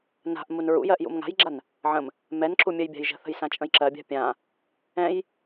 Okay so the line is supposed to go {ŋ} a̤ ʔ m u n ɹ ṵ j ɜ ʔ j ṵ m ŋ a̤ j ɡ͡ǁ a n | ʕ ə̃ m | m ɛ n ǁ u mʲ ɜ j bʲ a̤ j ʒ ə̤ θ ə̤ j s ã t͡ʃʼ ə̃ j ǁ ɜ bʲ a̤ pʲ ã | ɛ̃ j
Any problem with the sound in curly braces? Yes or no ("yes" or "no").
yes